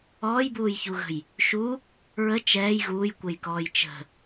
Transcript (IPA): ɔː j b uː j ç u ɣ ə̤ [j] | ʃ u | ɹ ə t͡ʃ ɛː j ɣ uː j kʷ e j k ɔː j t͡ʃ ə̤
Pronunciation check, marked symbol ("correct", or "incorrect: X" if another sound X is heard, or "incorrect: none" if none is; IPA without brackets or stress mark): correct